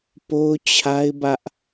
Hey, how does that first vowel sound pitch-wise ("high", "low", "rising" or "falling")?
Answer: high